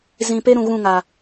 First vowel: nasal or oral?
nasal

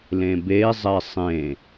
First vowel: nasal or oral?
nasal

